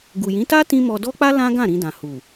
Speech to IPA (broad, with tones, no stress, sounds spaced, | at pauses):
ɡ u˨ j ĩ˨˦ t a˦ t ĩ˦ m ɔ˧ d ɔ˦ k͡p a˦ l ã˦ ɡ ã˦˨ ɾ ĩ˧ d ã˨ h u˨